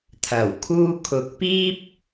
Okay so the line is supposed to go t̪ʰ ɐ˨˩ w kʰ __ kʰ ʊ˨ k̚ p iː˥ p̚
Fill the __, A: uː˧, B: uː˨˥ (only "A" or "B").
A